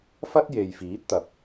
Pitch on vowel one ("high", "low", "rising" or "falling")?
high